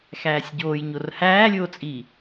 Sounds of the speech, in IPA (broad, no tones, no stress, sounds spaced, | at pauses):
x æː sʲ ɟ oː j ɲ o r h æː lʲ oː t͡sʼ iː